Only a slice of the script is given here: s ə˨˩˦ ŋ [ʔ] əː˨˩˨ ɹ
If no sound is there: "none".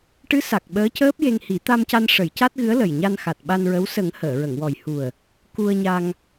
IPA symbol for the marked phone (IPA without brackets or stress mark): h